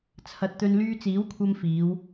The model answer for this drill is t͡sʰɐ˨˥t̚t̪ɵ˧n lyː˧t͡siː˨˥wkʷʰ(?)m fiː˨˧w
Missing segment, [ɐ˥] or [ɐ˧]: ɐ˧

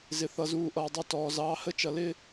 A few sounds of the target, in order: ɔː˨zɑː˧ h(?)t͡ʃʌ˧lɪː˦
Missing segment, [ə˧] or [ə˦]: ə˦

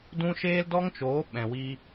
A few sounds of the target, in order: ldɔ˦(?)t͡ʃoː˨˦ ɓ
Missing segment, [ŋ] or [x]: ŋ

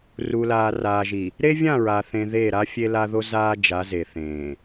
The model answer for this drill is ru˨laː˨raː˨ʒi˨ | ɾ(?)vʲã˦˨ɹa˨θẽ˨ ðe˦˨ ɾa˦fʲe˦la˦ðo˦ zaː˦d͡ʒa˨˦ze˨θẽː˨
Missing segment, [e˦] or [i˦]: e˦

